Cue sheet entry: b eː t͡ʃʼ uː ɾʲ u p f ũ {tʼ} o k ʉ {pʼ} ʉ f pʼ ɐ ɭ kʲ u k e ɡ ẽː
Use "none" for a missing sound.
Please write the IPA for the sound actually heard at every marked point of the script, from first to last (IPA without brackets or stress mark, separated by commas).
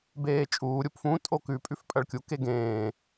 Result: tʼ, pʼ